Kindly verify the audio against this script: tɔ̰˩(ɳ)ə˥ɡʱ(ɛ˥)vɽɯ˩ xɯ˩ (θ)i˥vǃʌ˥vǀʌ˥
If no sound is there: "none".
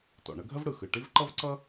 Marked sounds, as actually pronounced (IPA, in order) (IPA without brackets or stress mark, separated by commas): ɳ, ə˥, ʈ